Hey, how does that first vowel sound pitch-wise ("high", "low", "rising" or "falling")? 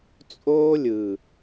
high